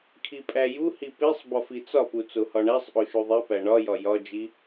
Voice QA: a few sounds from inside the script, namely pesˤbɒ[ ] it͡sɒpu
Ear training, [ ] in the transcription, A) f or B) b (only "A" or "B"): A